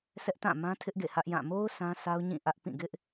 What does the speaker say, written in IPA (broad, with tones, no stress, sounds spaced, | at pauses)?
sʰ ɛ˦ ʔ t ã˦˨ m ã˦ tʰ ɪ˦ ʔ ɡ ḛ˦˨ h ä˦ ʔ j ã˦˨ m o˦ ʊ̯ s ã˦ sʰ a˦ ʊ̯ ɲ ĩ˦˨ ʔ ä˦ ʔ p ĩ˦˨ ɡ ɪ˦ ʔ